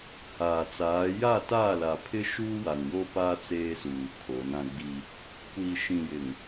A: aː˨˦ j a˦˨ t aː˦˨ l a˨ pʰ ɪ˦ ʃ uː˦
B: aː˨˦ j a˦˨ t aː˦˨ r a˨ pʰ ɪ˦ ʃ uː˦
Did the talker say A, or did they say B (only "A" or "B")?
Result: A